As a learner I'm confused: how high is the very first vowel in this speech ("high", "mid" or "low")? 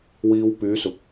high